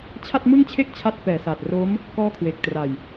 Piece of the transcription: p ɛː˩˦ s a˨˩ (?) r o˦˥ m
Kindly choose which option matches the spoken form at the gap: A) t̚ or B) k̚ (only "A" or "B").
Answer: A